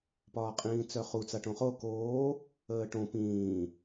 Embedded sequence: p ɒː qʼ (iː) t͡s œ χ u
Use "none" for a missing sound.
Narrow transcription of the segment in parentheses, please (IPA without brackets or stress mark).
ĩː